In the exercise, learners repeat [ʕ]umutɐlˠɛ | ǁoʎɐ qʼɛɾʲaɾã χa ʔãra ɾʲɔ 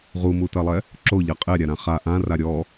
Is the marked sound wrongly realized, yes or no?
yes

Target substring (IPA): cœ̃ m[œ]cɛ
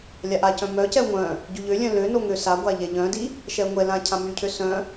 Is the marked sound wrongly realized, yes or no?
no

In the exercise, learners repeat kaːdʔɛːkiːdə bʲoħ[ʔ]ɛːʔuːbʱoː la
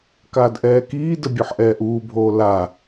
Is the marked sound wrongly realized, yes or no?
no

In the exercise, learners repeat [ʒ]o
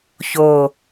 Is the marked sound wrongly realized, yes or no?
yes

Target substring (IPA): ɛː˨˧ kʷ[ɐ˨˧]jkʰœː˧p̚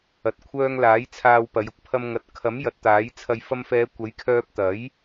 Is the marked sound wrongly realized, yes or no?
yes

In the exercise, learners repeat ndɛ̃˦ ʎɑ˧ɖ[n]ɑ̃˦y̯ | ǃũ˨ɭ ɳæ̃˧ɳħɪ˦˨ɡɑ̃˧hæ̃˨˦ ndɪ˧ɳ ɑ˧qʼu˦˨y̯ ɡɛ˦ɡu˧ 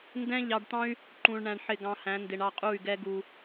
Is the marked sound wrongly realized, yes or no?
yes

